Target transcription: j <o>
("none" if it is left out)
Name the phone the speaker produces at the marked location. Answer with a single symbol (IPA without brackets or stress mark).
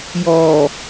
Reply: ɔ